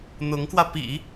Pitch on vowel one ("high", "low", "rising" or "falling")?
rising